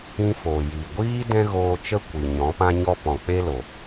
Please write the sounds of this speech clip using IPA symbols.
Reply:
ĩ˧ f oː˨ j iː˨ ɡʷ iː˦ d ɛ̃˦ ɣ oː˧ t͡ʃ ə˦ kʷ i˨ ɲ ɔ̃˨˦ p ã˦ ɲ ɔ˦ p ɔ̃˨ k͡p e˦ l o˨

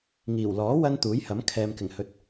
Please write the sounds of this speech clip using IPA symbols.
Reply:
ŋ iː˨˩ w l ɔː˨˥ w ɐ˧ n t̪ uː˨˥ j h ɐ˨˥ m kʰ ɛː˨ m k ɪ˨˩ ŋ h ɵ˨˥ t̚

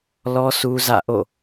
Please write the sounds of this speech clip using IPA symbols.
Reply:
l ɔ˦ s u˦ z ä̰˦˨ ʔ o̰˦˨

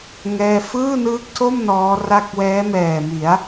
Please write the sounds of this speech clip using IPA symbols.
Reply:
ŋ ɛː˥˩ f ɯː˥˩ n ɯː˦˥ k̚ tʰ o˥˩ m n ɔː˦˥ r a˥˩ k̚ w ɛː˦˥ m ɛː˨˩ m i˩˦ a̯

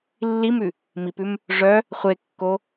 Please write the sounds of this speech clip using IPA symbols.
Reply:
lː i m ʉ | m i p ʉ m | ʐ œ | χʷ e kː o

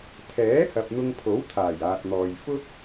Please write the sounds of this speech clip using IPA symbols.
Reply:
t̪ʰ ɛː˨˥ h ɐ˨ p̚ n̪ ʊ˧ ŋ pʰ o˨˥ w t̪ʰ aː˨˩ j aː˨ t̚ n̪ ɔː˨ j f ʊ˥ k̚

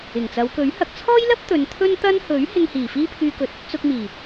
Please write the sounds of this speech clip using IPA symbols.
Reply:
ɪ˨˩ ŋ t͡s ɐ˨˧ w k ɵ˨˥ ɥ h ɐ˨ k̚ t͡sʰ ɔː˥ j l ɐ˥ p̚ t̪ ɵ˨˧ n t̪ʰ ɵ˥ n t̪ ɐ˥ n h ɵ˨˥ ɥ h ɪ˧ ŋ h iː˨˩ f iː˥ pʰ yː˧ k ɵ˧ t̚ | t͡s ʊ˧ k̚ m iː˨˩

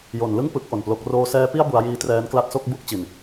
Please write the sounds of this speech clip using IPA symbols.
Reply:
j o˩˦ n l ɯ˥˩ ŋ p ɯ˦˥ k̚ ʔ o˨˩ n p l o˦˥ k̚ r oː˧ s ɛː˦˥ p i˥˩ a̯ b u˧ a̯ j iː˦˥ t r ɛː˦˥ n k l a˦˥ t̚ s o˥˩ k̚ b u˥˩ k̚ t͡ɕ i˨˩ n

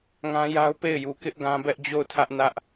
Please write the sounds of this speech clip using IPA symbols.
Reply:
ŋ ã˦ j a˦ ʊ̯ p e˦˨ ɪ̯ j u˨ k ɪ˦ ʔ ɡ ã˦ b ɛ˦ ʔ d͡ʑ o˦˨ ʊ̯ tʰ ä˦ ʔ n ä˦ ʔ

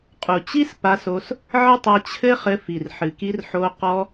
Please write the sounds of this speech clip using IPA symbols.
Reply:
qʼ u˨ t͡ɕ i˦ s p a˧ s o˧ s | ʕ ɘ˦ tˤ a˧ t͡ɕʰ ɘ˦ χ ɘ˧ f i˨ r ħ ɨ˨ k i˧ r ħ o˧ q ɔ˧

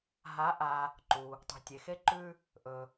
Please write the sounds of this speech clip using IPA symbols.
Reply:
ɦ a˧˥ ʔ a˧ | ǃ u˩ | tˤ ṳ˩˧ tʲ e˩˧ x e˧˥ ǃ ʉ˧ | ʔ ɵ˩

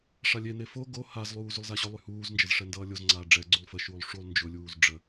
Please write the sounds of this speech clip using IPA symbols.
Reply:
ʂ a lʲ e n e f o ɡ o h a z lˠ uː z y lˠ z a ɕ ʊ lˠ y h uː z n d͡ʒ ə z ʂ ɛ n d ʌː lʲ o z ŋ͡ǀ aː ɖ͡ʐ ɛ ɡ͡ǀ u lˠ f ə ʃ uː lˠ ʂ u lˠ n d͡ʒ ʊ lʲ uː z ɖ͡ʐ ə

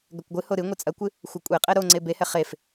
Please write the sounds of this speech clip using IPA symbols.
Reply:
ɡ ɐ kʷ ɡʷ ɨ h o ɾ ɨ ŋʷ ɨ t͡sʼ ɐ kʷ ɨ | xʷ ɐ kʷʼ e qʼ ɛ ɾ o ŋ͡ǀ e b e h ɛ χ e f

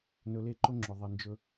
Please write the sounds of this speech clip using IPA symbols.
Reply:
n ɵ˧ l e˦˨ ǃ ʊ˦ ŋ͡ǁ ɵ˨ ðˤ i˨ n d͡ʒ ɵ˧

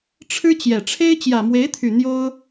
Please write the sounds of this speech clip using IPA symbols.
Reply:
ʈ͡ʂʰ ɻ̩˥ t͡ɕ j ɛ˨˩ ʈ͡ʂʰ e˥ ɪ̯ t͡ɕ j ä˨˩ m w e˧˥ ɪ̯ t̪ʰ y˨˩ n̪ j o˥ ʊ̯

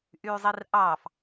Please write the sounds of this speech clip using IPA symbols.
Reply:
ʔ yː zˤ i r ʔ ɑː f

